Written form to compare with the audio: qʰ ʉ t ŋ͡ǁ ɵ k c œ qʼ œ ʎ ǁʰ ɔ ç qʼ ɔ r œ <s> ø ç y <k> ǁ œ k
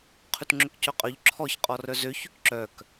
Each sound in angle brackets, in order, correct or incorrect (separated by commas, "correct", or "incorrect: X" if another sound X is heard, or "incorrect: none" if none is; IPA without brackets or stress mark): incorrect: z, correct